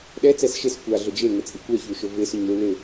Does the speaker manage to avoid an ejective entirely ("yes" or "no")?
no